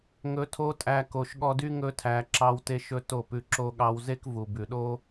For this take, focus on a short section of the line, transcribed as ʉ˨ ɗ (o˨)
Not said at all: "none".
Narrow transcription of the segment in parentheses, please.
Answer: o˦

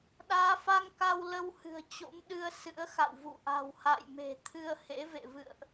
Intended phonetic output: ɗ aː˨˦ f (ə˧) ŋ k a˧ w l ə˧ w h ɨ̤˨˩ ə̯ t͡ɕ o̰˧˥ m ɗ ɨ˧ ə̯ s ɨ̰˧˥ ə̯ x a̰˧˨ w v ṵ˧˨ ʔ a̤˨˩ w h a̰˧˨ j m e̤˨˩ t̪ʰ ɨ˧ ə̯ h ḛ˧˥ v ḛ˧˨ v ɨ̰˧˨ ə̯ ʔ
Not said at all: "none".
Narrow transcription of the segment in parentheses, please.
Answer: a˧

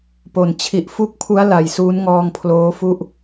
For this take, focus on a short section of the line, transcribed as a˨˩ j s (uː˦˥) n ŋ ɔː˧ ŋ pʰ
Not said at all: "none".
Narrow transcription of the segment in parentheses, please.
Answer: uː˦˥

